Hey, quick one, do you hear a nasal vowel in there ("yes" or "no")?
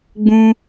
yes